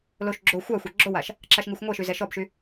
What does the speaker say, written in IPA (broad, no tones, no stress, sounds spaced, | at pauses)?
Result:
l o ʃ ɡ͡ǁ o xʷ a xʷ a ɡ͡ǁ o w a ʃ | ǁ a ʃ ŋ i xʷ ŋʷ ɛ ʃ y z ɛ ʃ ɔ b ʃ y